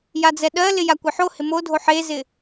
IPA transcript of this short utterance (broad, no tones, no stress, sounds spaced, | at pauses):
j a d͡z ɛ ɗ ɜ l ɪ j a kʷ ɪ ħ o h ɪ m o dʱ o ħ e z ɪ